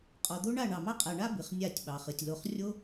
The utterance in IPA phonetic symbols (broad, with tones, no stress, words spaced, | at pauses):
qʼɔ˨d̪o˦ ɳa˦˨ɳɑ˨mɑ˦ qʼa˨ɳa˦ bɨ˨χnʲa˦˨tʲɓɑ˨χɨ˨tʲ lo˨χrʲo˦